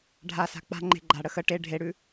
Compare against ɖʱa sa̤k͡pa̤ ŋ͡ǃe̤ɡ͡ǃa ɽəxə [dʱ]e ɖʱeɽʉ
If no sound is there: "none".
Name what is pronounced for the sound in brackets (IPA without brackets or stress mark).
ʈ